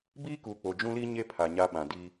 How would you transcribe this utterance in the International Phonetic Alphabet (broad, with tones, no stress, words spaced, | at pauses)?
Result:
biː˦kuː˨k͡po˨ d͡ʒũ˦liː˦ ɲe˦ pʰa˨ɲa˦ɓã˨di˦